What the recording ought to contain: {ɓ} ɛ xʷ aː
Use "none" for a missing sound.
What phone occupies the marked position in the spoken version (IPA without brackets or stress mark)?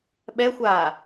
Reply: ɓ